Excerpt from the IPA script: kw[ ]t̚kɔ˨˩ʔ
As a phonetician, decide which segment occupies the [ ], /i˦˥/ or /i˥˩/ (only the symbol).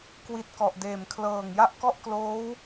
i˦˥